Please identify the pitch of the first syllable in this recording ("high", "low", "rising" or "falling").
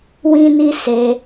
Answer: high